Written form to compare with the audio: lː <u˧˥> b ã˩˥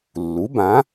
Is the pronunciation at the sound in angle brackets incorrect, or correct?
incorrect